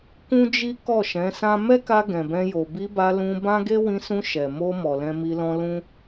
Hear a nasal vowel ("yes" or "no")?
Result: yes